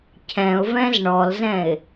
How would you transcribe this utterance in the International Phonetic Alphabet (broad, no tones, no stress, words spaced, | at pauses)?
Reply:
cʰɛ̃ʊ̯vɛ̃z ɳɔlzɛ̃ɪ̯